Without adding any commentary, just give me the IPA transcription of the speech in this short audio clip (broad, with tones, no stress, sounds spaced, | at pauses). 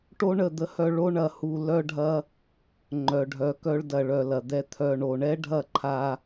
ʈ o˦ ɳ ə˦˨ d̪ ə˦ h œ˧ ɭ o˦ ɳ ɐ˧ h u˧ l œ˦ ɖʱ ɐ˦ | ŋ͡ǃ œ˨ ɖʱ œ˨˦ k œ˧ ɭ d ɐ˨ ɭ œ˨ l ɐ˨ d̪ ɛ˧ t̪ʰ œ˨ ɳ o˨ ɳ ɛ˦ ɖʱ ɐ˦˨ ǃʰ a˧